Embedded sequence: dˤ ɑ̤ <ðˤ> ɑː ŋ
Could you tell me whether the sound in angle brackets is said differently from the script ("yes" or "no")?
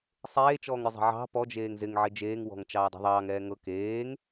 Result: no